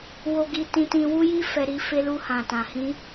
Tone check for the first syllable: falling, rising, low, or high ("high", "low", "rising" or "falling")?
high